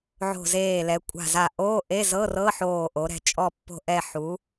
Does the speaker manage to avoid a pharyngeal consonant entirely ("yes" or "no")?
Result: no